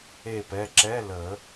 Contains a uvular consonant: no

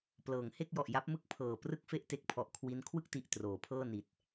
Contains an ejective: no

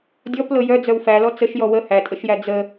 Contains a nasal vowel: no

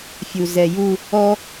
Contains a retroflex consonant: no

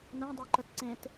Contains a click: yes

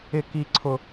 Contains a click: yes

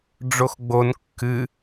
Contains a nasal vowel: no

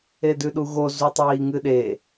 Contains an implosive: yes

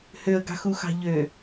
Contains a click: no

